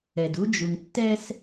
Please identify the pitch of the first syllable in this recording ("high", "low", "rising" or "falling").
low